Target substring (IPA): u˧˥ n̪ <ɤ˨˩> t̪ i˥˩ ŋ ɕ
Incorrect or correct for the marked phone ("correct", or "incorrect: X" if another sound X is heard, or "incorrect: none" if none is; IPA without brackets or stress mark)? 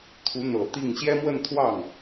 correct